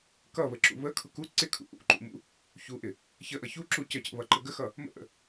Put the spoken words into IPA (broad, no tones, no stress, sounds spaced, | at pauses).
k ʌ β ə ǁ ṵ β ə kʰ ʊ k u ǀ ɪ kʰ ṵ ʔ ṵ ǃ ṵ m ṵ | ç u ʔ ɪ | ç ə ʔ ʌ ç u ǁ u c ə c ə̰ β ʌ ǃ ə ɡ ə x ʌ | m ə̰ ʔ ə̰